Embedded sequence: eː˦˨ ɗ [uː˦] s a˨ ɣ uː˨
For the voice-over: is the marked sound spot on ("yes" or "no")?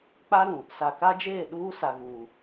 yes